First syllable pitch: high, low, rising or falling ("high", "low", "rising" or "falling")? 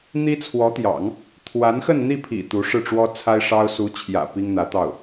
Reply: high